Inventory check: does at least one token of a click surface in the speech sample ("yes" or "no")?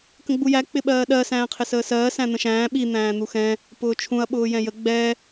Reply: no